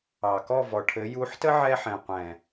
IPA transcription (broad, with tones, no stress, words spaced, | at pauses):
ɑ˨kɔ˦˨vɔ˨ʈʰɘ˨˦ ju˨˦ħtə˦ ʕɛ˦ħɛ̃˨ qʷɛ̃˨